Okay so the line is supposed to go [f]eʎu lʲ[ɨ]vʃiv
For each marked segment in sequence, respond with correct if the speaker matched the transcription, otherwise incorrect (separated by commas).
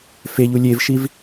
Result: correct, incorrect